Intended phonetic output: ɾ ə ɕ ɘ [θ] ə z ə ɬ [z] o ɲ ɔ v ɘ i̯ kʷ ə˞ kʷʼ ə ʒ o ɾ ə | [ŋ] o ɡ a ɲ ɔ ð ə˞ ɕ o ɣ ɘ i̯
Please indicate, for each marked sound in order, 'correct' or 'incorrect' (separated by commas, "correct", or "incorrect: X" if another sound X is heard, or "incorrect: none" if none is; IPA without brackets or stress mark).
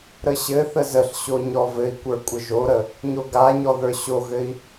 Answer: correct, incorrect: ɕ, incorrect: ɲ